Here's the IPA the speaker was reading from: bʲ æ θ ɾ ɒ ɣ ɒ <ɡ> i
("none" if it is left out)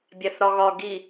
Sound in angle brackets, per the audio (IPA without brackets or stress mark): ɡ